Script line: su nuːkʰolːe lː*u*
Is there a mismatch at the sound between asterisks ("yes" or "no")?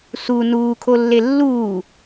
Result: yes